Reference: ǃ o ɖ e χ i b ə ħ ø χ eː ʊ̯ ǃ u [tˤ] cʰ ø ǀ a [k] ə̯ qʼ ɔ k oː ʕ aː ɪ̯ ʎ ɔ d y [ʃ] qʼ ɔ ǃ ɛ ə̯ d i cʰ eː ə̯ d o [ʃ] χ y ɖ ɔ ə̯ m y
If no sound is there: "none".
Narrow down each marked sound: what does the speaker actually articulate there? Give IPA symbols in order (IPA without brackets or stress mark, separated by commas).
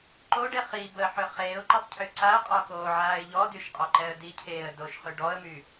tˤ, none, ʃ, ʃ